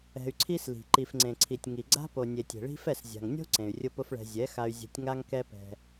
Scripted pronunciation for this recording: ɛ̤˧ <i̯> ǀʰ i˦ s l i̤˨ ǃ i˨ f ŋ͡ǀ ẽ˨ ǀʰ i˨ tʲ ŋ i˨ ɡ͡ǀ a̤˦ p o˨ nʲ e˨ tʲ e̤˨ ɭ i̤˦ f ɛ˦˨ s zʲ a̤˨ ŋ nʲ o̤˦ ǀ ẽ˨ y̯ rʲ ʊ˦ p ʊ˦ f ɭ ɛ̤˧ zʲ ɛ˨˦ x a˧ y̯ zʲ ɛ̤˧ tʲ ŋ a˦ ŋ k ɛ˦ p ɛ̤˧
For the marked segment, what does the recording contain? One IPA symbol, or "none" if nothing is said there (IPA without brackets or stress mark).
y̯